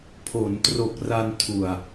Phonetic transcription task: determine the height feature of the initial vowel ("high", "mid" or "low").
mid